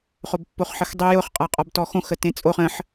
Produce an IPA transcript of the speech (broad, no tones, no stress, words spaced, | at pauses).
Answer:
χobpːoχħəxdˤe jʊχqʼaqʼɔb tɔxõxətẽ t͡sʼoχ ə̃ħ